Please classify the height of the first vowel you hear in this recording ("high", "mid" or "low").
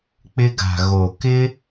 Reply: high